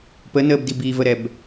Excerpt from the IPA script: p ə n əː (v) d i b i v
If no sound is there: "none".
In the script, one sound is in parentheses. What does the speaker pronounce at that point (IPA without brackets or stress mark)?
b